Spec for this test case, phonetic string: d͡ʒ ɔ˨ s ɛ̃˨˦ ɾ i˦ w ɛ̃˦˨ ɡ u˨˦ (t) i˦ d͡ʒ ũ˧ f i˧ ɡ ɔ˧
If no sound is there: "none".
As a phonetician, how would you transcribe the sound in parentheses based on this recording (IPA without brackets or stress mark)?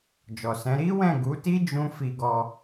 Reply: t